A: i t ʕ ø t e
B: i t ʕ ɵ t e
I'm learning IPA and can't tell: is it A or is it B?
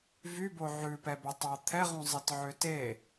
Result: A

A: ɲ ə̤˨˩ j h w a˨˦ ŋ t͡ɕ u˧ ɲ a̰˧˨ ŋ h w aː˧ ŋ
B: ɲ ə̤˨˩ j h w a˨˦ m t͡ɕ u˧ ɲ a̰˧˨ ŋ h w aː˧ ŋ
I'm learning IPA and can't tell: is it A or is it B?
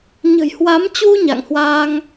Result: B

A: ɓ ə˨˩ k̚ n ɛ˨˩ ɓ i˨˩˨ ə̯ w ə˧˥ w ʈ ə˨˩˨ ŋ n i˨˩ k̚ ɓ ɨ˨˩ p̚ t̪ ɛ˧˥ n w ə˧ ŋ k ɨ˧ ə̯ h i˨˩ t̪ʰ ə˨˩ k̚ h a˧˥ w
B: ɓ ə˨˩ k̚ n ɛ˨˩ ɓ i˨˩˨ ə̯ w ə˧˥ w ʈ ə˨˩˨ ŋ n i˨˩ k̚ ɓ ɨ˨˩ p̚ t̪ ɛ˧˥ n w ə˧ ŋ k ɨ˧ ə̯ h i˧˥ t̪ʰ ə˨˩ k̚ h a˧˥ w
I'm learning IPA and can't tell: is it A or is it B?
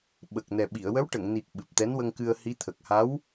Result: B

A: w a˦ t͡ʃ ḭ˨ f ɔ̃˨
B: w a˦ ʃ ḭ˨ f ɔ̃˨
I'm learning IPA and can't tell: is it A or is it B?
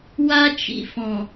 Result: A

